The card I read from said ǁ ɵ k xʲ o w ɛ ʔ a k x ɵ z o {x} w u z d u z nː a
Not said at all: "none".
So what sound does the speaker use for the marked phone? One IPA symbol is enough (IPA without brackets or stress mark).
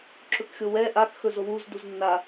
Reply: none